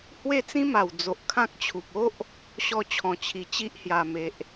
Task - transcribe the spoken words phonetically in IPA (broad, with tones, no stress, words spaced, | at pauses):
hwe˥˧t͡sĩ˦ma˨˩w d͡zo˨ʔ kʰã˦k̚t͡ɕʰu˨p̚ o˦ʔ | ɕɔ˦t͡ɕʰɔ̃˨˩ t͡ɕʰi˨˩ t͡ɕi˦ʔ hja˨˩me˨ʔ